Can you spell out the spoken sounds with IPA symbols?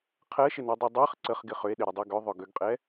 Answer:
qʰ ɜ ʃ ɪ n o dˤ i dˤ ɜ χ ǀ ə χ ɡ ɪ χ ʏ e̯ ɗ ɪ ɾ ʏ dˤ o ɡ ʏ ðˤ ʏ ɡ ʏ ɡ qʼ ɛ

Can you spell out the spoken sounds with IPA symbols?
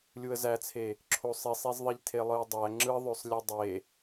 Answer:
lʲ u ə̯ z æ t͡sʰ e | ǁʰ o sˤ i sˤ e z ðˤ i ʎ tʰ e lˠ ɯ ə̯ dˤ æ ŋ͡ǁ ɯ ðˤ ø sˤ lʲ ɯ dˤ e

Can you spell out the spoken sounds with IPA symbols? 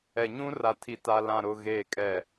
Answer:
ɛ˨ ɲ ũ˦ r a˨ tʰ i˨ t a˨ l ã˨ ɾ ʊ˨ ɣ eː˨ kʼ ɛ˨

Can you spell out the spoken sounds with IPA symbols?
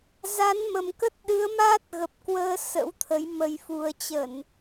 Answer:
z a˨˦ n m ə˨˩ m k ə˦˥ t̚ ɗ ɨ˨˦ ə̯ m aː˦˥ t̚ ɣ ə˨˩ p̚ k w əː˧ s ə̰˧˥ w t̪ʰ ə˨˦ j m ə˨˩ j f u˨˩ ə̯ t͡ɕ ə˧˩˨ n

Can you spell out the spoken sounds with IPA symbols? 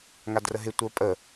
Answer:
ŋ a d r ə ɦ ɪ tʷ ə˞ pʼ ə

